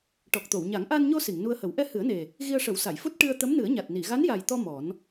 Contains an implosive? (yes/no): no